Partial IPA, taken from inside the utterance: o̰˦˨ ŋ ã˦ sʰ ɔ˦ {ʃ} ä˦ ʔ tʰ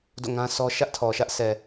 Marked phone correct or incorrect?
correct